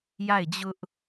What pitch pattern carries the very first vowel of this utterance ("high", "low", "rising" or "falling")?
falling